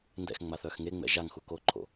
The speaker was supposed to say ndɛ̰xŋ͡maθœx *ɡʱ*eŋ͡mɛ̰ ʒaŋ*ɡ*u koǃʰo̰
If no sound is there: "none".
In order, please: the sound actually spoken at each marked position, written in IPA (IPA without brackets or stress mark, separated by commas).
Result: ŋ, x